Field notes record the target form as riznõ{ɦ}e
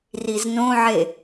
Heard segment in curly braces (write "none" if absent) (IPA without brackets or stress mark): ʕ